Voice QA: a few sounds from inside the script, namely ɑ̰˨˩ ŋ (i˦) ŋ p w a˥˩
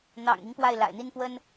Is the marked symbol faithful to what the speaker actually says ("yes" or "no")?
yes